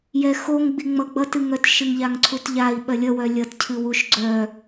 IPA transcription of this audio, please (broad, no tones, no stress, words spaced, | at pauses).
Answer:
jɛxoŋɡ͡bi ŋ͡mʌɡ͡bʌtɨŋœt ʃɨŋʎaŋǀʰutʎai̯ ɓɜlʲʌwœ lʲʌtcʰɨ wuʃɡ͡ǀœ